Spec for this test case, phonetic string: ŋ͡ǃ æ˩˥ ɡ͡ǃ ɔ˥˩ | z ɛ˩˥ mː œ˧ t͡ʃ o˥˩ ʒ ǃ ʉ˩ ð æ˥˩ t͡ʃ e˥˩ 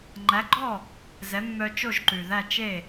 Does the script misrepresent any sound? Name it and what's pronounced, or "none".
none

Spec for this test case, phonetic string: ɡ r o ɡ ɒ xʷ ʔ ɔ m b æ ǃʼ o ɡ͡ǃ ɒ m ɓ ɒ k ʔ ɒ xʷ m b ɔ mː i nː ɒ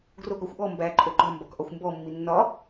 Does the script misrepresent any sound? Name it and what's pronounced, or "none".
ɓ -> b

